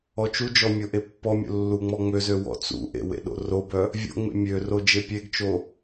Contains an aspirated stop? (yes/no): no